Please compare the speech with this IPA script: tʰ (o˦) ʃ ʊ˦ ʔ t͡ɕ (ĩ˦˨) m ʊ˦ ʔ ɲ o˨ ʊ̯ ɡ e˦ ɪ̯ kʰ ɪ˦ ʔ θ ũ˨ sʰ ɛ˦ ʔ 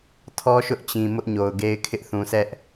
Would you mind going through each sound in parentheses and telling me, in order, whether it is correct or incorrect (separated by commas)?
incorrect, incorrect